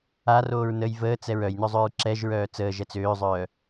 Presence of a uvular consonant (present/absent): absent